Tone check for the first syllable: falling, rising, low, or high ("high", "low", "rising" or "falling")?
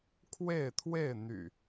falling